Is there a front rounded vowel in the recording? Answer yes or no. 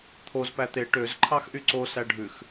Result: yes